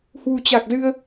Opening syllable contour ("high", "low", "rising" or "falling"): low